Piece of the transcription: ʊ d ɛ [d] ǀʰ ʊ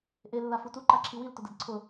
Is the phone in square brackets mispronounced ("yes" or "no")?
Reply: no